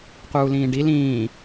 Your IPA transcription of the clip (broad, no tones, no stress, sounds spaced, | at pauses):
q uː l ĩː ɖ i l ĩː